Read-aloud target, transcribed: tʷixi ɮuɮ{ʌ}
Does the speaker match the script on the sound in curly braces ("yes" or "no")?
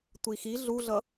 yes